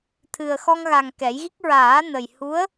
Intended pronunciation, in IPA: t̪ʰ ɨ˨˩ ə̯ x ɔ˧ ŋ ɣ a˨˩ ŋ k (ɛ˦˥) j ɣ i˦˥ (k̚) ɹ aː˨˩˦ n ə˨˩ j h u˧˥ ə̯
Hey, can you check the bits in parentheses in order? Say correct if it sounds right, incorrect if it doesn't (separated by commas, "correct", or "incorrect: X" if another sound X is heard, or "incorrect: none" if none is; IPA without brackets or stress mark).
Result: incorrect: ɛ˨˩˦, correct